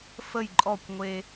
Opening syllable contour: falling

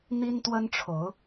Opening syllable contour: high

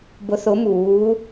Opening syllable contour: rising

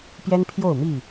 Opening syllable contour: high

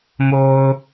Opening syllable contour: low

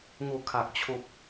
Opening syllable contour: falling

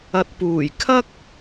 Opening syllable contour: low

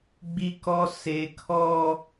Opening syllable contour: high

